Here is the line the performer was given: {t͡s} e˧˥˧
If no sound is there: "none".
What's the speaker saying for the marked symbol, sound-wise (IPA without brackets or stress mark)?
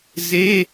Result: z